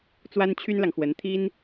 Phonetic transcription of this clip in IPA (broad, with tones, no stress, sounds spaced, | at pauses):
t͡s w a˥ n t͡ɕʰ y˥ n l ɑ˨ ŋ x w ə˧˥ n t̪ʰ i˥ n